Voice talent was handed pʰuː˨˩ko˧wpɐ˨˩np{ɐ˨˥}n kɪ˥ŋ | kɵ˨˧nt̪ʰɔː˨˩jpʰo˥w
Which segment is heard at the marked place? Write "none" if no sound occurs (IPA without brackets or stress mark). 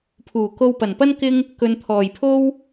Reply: ɐ˥